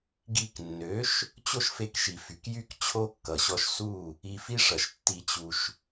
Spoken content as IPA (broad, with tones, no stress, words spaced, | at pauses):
ɡi˧knːø˨˦ʃ | t͡ɕo˦ʃfe˧kʃi˨fy˨k jy˦k t͡ɕʰo˦kːʌ˨ɕɔ˧ʃ su˦˨ | i˧fi˦ʂʌ˨ʃ tːi˧t͡ɕu˧ʃ